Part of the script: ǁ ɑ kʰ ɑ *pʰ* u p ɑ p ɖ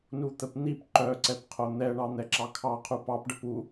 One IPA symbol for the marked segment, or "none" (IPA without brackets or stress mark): qʰ